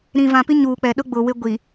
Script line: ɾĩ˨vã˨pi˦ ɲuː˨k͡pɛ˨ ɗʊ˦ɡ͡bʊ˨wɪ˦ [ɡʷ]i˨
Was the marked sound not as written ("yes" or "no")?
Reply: no